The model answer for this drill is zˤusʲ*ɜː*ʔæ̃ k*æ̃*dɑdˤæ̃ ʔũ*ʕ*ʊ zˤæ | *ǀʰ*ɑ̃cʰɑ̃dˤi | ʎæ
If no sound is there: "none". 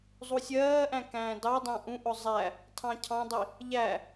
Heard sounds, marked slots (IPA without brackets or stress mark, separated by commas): ɜː, æ̃ː, ʔ, tʰ